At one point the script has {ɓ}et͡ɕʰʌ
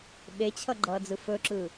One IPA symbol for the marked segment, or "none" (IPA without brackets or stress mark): ɓ